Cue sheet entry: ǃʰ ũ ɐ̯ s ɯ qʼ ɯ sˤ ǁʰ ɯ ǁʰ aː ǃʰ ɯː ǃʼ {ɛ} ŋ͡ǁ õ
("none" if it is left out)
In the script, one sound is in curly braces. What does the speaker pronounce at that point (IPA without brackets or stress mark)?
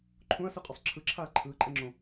ɛ